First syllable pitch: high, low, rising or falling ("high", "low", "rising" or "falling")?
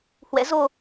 rising